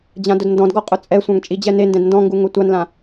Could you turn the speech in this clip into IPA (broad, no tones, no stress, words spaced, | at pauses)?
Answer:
d͡ʑãdʊdndɔ̃dɡɔ qʼʊt͡sʼɛsʷãŋ t͡ʃʼid͡ʑɛnendɛ̃d ndɔ̃ŋɡu ŋʊtʷanlã